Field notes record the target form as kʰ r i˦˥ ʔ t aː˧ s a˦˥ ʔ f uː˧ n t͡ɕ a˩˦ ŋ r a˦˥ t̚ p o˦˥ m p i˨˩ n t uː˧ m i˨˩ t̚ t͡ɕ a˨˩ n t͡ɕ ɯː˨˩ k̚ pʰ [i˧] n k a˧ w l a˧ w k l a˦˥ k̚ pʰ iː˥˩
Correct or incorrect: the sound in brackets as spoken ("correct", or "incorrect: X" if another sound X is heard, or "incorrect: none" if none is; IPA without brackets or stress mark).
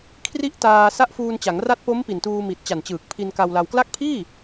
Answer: correct